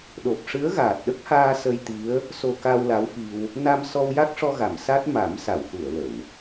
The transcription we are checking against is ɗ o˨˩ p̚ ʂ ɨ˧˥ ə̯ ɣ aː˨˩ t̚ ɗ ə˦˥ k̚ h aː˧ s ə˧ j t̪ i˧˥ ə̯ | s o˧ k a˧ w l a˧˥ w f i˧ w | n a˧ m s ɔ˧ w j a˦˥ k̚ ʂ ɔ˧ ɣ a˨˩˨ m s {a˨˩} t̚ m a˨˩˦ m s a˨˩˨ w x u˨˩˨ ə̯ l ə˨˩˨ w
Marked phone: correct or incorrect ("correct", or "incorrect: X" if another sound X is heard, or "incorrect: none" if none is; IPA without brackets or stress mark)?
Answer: incorrect: a˦˥